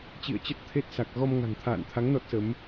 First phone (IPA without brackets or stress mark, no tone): t͡ɕ